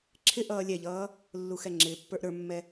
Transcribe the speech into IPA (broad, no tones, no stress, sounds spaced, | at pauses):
ǁʰ ɪ ʔ ʌː lʲ ɛ ʎ ʌː | lː u x ɛ ŋ͡ǁ ɪː pː ə˞ ʔ ɾ ə˞ mː ɛ